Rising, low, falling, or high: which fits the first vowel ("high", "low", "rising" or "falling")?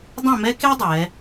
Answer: falling